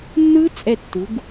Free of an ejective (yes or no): no